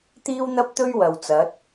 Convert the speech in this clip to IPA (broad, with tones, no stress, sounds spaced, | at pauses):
t̪ iː˥ w n̪ ɐ˥ p̚ t̪ ɵ˥ ɥ w ɐ˨ w t͡s ɐ˨˥ t̚